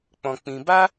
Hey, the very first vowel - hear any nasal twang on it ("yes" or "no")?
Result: yes